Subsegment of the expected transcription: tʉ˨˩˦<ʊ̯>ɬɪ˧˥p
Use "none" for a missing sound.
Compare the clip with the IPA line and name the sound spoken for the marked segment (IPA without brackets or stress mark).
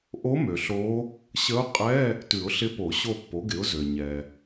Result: ʊ̯